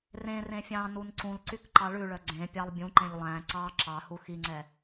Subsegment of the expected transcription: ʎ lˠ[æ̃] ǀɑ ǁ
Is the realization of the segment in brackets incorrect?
no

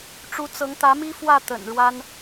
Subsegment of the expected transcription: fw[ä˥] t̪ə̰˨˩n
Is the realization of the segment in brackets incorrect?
yes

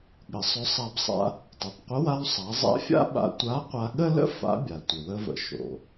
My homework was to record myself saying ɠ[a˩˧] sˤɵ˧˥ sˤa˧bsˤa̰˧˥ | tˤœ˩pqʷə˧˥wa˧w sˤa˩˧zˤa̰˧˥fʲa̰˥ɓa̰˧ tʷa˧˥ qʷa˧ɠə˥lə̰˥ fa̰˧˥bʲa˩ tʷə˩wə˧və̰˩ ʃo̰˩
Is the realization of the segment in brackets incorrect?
yes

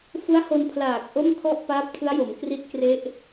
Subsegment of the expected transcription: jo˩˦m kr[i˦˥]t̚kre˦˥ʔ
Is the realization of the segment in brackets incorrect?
no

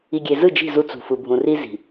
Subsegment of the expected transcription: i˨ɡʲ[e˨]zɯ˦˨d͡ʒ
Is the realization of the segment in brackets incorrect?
no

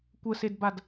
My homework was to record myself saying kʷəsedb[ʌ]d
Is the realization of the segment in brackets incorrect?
yes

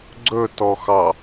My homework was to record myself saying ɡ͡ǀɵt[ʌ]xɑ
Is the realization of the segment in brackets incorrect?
yes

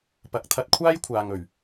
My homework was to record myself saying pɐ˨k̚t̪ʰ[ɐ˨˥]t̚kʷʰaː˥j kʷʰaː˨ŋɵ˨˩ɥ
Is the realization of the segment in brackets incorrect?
yes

